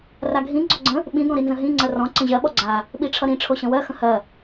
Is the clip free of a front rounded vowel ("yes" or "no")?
yes